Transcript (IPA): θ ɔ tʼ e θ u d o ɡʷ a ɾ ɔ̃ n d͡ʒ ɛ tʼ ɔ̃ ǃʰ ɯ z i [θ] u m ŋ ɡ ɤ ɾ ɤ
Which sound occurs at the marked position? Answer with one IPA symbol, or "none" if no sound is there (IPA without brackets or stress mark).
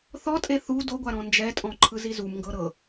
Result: z